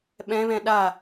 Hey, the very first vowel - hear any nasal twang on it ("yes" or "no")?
yes